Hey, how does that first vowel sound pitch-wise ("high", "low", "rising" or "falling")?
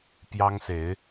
high